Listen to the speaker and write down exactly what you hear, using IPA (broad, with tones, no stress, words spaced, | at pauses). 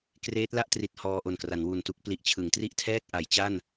kreː˦˥t̚la˦˥ʔtri˨˩t̚ hɔː˧ʔo˨˩nkra˩˦n wu˨˩ntu˥˩k̚ pli˨˩ʔt͡ɕʰɯ˩˦ŋtri˥˩ʔtʰɛː˥˩k̚ ʔa˩˦jt͡ɕa˥˩n